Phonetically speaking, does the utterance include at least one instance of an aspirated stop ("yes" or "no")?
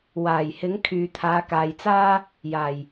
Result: yes